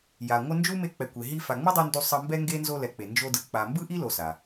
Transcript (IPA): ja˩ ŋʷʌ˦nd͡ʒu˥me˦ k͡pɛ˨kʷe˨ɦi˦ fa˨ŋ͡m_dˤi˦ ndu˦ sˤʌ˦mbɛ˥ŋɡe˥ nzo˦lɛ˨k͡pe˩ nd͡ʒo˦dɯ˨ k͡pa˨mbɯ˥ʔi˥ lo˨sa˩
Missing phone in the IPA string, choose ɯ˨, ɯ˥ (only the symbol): ɯ˥